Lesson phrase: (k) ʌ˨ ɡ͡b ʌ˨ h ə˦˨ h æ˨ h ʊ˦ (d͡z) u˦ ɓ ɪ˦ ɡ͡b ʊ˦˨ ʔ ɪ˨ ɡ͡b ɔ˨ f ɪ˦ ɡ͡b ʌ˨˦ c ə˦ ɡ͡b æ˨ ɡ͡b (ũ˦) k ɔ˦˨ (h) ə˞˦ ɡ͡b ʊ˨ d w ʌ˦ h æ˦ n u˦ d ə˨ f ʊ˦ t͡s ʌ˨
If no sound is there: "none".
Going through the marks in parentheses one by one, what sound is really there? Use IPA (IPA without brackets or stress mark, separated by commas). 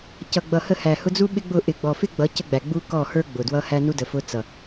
c, d͡z, u˦, h